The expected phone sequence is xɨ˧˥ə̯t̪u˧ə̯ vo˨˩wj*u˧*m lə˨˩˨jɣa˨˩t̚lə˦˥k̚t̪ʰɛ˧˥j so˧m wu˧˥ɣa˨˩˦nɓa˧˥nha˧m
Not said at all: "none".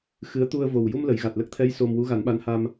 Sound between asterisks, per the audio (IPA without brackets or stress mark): u˧